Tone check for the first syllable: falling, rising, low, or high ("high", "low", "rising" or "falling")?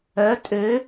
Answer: rising